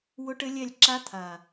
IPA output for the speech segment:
w ʊ˦ ʈ ɘ˦ lʲ ɛ˦˨ lʲ ǁ a˦ t̪ʰ a˨

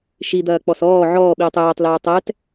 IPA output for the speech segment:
ʃ i d̪ ɐː k͡p ɔ s ɔː ʕ ɔː ɓ iː tˤ eː tˤ l ɛː tˤ ɛ t

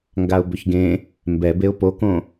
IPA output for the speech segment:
ŋ ɡ a ʊ̯ b ʏ ç ɡ ẽ | m b ɛ b e ʊ̯ p o k õ

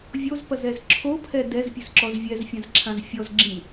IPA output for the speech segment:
vʲ o z p ɐ z ɛ z ǁʰ o pʰ ɛ d ɛ z pʲ ɘ z ǁ ɔ z vʲ ɛ z fʲ ã z ǁʰ ã z fʲ ɔ z ɡ͡ǁ ĩ

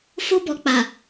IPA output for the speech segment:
f o˦ b ɔ˨ k͡p a˨

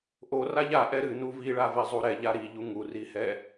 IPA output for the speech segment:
ʔ o r a ʎ a ʔ ɛ ɾ ɨ n u v i ɭ a v ɛ zˤ u ɾ ɛ ʎ a ɾ i ʎ u ŋ u r i h ɛ

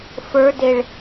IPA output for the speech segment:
f ə˞ d e ɭ

